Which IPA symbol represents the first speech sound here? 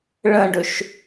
ɭ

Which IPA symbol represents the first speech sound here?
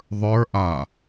ðˤ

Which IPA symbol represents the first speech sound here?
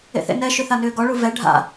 ḛ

